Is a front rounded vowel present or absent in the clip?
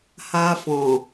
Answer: absent